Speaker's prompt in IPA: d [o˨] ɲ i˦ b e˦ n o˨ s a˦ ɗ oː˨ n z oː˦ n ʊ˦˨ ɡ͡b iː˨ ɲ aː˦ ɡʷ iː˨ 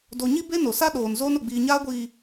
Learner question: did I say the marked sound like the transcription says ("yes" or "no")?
yes